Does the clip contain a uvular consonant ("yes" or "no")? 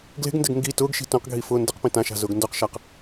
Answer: yes